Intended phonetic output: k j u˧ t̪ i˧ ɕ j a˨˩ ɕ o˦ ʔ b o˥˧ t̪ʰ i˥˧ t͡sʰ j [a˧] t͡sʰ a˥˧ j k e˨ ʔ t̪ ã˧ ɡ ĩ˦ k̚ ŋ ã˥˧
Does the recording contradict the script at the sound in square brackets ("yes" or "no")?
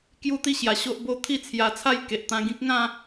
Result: no